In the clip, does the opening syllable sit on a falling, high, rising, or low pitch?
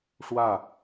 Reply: falling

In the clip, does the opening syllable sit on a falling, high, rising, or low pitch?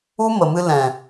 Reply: high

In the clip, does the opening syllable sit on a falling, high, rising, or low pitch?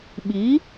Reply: rising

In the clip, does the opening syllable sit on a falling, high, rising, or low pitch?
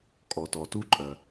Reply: low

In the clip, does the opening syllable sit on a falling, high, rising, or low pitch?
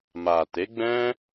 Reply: low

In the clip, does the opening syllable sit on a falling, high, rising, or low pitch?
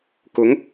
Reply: rising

